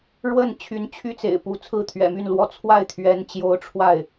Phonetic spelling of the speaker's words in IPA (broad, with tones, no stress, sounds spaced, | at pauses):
ɻ w ə˥˩ n t͡ɕʰ y˧˥ n t͡ɕʰ y˥ t͡s ḛ˨˩ ɪ̯ p u˧˥ t͡sʰ ɹ̩˥˩ t̪ʰ ɥ ɛ̰˨˩ m y˥˩ n l w ɔ˧˥ t͡sʰ w a˥˩ ɪ̯ t̪ʰ ɥ ɛ˧˥ n t͡ɕ j o˧˥ ʊ̯ ʈ͡ʂʰ w a˥˩ ɪ̯